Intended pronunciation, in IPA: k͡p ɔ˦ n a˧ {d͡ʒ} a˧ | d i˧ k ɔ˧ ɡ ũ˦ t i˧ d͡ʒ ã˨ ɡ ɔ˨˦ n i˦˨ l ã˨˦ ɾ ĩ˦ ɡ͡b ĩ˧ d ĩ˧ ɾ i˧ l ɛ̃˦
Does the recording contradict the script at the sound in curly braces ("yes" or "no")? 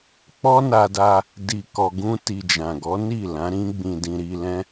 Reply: yes